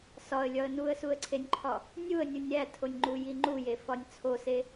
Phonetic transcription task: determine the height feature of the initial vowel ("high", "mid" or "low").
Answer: low